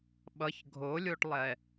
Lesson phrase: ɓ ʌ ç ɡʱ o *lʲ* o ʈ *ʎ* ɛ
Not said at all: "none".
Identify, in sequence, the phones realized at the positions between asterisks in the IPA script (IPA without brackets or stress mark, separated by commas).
lʲ, lˠ